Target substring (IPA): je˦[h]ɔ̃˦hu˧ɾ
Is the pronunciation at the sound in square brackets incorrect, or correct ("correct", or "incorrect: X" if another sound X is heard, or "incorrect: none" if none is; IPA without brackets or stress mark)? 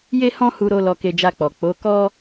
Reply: correct